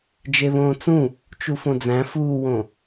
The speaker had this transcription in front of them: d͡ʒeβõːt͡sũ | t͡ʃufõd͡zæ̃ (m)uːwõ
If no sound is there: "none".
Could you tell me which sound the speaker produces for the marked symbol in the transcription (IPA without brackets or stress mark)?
f